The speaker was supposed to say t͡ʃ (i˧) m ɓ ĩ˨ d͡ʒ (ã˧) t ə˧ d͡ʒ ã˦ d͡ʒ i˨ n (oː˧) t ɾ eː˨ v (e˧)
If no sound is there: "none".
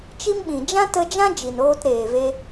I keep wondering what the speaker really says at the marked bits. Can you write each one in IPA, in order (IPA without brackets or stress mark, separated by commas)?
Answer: i˦, ã˦, oː˧, e˧